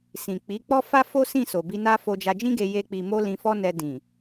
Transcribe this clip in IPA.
sĩ˨ k͡pi˨˦k͡pɔ˦fa˦ fo˦sĩ˦˨so˨bi˧ na˦ fo˧d͡ʒa˧d͡ʒĩ˦ɡe˧ je˦k͡pi˧ mo˦lĩ˧fɔ˦nɛ˧ dĩ˨

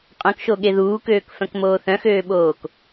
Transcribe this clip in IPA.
qʼœ̃kʃoɠe ðuːkøːkfœ̃kmoː θœ̃xøːɓoːk

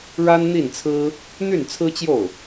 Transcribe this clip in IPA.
ɻa˥nn̪i˥˩nt͡sʰɹ̩˥ | n̪y˥˩nt͡sʰɹ̩˥t͡ɕjo˥˩ʊ̯

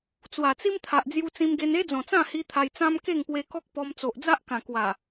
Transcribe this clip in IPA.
t͡swa˨˩t͡si˦mt̪ʰa˨ʔ d͡zju˧t͡sĩ˧mɡe˧n e˦d͡zɔ̃˨˩t͡sã˥˧hi˧ t̪ʰa˧jt͡sã˦m ke˥˧ŋpwe˧kɔ˦k̚ pɔ˧m t͡so˨ʔd͡za˦ʔkã˨˩kwa˨˩

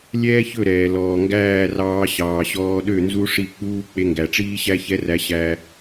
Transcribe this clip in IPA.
lʲɛː˦çɵ˦˨ɾɛː˨ lɔː˨ŋɡæː˦˨rɑː˧ ɕɑː˨ɕɔː˧ɗø˦˨ nzu˦ʂi˦˨k͡puː˦ k͡pe˧ŋɡæ˨ʈ͡ʂiː˦ ɕæ˦çɛ˦ræ˧ ɕæ˦

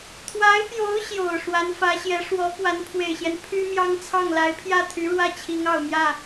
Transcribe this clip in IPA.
t̪ʰwa˧˥ɪ̯pjo˧˥ʊ̯ ɕjo˨˩ʊ̯ʂwa˧˥nfä˧˥ɕjɛ˧˥ ʂwɔ˧˥ kwa˧˥npʰwe˨˩ɪ̯ɕjɛ˦n pʰy˥mjɑ˥ŋt͡sʰɑ˥˩ŋ la˧˥ɪ̯pʰjä˥˩t̪ʰy˧˥ɻwä˥˩ t͡ɕʰi˧˥ŋɑ˨˩ʊ̯mjä˥˩

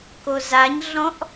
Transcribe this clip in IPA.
kozaɲɮɔ̃ʔ

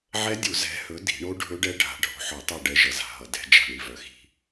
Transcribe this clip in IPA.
ʕɛ˦˥dʲu˧˩˧ zɛ̤˨˦hɵ˨˦ di̤˧˩˧ɳo˦˥ɖʱɵ˦˥ɖɛ˦˥ ɖʱa̤˨˦ɖʱo̤˩˧˩ħɒ˧˩˧tˤa˦˨ ɖɛ˦˥ʒʌ˨˦za̤˧˩˧ɦʌ˨˦ dɛ̤˨˦ d͡ʒa̤˦˨ɳi˦˨vœ˨˦xi̤˦˨

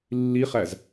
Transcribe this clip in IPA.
lːiχæz

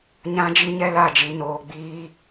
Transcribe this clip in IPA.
ɲã˦d͡ʒi˦ɲɛ˦la˦˨ d͡ʒi˨noː˨ɡ͡biː˦

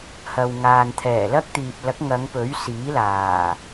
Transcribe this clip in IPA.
hɐ˨wŋaː˨n t̪ʰɛː˨˩lɐ˥k̚t̪iː˨p̚lɐ˨˥k̚ ŋɐ˨˧ŋpɵ˨˥ɥsiː˨˥ laː˨˩

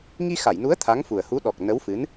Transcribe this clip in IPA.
ŋi˧xa˨˩˨jnu˧˥ə̯ t̪ʰa˧˥ŋfu˨˩ə̯hu˧˥ ɗɔ˨˩k̚ nə˧˥wfɨ˧˥n

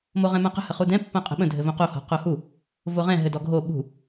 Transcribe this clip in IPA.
moʁɛ̃mãqə̤ həχudɛ̃ pːãqʼə̤ɓə̃ dʱɘvõqo hɔ̤qohu | voʁɛ̃ ɦɘdɔɡʱo ɓṳ

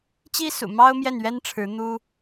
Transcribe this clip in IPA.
t͡ɕi˥sṵ˨˩mɑ˥ʊ̯mjɛ˥˩n ɥɛ˥nʈ͡ʂʰɻ̩˧˥ n̪u˥

